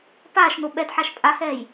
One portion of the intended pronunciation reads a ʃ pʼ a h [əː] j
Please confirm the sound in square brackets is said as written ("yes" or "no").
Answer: no